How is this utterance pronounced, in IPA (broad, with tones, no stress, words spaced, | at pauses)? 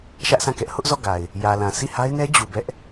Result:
ʃä˦ʔsʰã˦˨kɛ˦ʔ hʊ˦ʔ zɔ˦˨ɡa˨ɪ̯ | jä˨lã˨ sʰi˦˨ha˦ɪ̯nɛ˦ d͡ʑu˨bɛ˦ʔ